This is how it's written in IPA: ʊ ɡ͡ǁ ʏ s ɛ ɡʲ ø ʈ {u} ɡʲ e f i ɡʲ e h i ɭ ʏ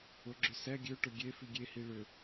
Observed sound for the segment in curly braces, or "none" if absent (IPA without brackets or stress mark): ʊ